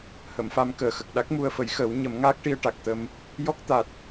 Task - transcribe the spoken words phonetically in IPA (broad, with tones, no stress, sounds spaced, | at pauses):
h ə˨˩˨ m f a˧ m k əː˨˩ x ə˨˩ k̚ ɗ a˦˥ k̚ m u˧ ə̯ f ə˨˩˦ j x əː˨˩˦ w ɲ ə˨˩˦ m ŋ aː˦˥ k̚ ʈ i˧ ə̯ ʈ a˨˩ k̚ t̪ ə˧ m | j ɔ˦˥ k̚ t̪ a˨˩ t̚